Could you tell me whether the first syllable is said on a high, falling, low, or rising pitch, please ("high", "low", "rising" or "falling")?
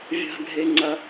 high